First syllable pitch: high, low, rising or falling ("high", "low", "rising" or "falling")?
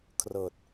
low